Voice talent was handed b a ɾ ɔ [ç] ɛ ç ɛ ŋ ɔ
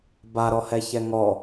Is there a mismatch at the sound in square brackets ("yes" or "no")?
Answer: yes